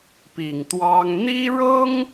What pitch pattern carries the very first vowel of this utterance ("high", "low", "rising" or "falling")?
low